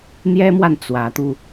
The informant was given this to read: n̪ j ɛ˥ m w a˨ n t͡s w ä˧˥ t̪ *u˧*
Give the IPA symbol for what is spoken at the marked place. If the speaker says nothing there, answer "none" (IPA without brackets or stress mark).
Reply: u˧